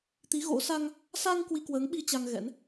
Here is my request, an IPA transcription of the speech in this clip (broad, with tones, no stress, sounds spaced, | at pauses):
t̪ i˨˦ ɣ o̰˧˥ s a˧ ŋ | s a˧ ŋ k w i˧ k w əː˨˦ ŋ ɓ i˧ t͡ɕ a˧ ŋ ɣ ɛ̰˧˥ n